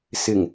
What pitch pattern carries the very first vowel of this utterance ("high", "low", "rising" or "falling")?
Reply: low